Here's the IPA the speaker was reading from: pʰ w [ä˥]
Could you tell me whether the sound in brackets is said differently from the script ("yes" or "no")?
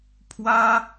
no